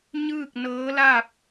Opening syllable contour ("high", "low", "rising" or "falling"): falling